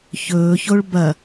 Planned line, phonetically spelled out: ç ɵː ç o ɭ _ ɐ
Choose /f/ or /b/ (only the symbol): b